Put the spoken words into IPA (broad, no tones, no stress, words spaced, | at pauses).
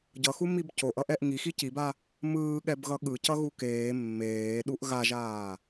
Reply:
ɟʌxumib coʔʌʔɛʔ ŋixi ciba | mɯːɠɛbɣʌ ɠɯcʌɣu keː mːeːɗuʔ ɣaʒaː